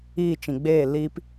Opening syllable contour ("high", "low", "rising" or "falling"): falling